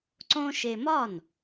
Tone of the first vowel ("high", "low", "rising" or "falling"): high